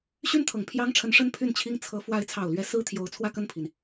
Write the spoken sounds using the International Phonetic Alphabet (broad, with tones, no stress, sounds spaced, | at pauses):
ɕ y˥ n t̪ʰ ɤ˨˩ ŋ pʰ j ɑ˥ ŋ ʈ͡ʂʰ ə˧˥ n ʂ ə˥ n pʰ y˥˩ n t͡ɕʰ i˥ ŋ t͡sʰ ɤ˧˥ f w a˧˥ ɪ̯ t͡sʰ ɑ˨˩ ʊ̯ l ɥ ɛ˧˥ s ɹ̩˥ t̪ʰ j o˧˥ ʊ̯ t͡sʰ w ä˥˧ k ə˥˩ n pʰ i˩ n